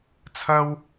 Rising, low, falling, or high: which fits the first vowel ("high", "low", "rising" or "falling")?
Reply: high